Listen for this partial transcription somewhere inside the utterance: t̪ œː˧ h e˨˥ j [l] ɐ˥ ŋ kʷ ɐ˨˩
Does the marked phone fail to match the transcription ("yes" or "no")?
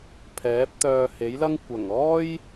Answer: no